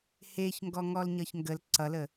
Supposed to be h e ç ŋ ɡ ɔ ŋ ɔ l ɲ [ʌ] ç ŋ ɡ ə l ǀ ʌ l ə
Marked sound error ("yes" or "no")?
no